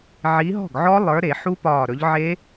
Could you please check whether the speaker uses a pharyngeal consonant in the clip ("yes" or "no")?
yes